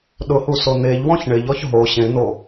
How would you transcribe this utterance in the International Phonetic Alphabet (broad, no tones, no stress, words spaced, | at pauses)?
ɗʊhuso n̪eʎwɔ̃ç ɳɪʎɔç ɦo ɕẽn̪o